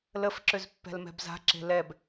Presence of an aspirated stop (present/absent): absent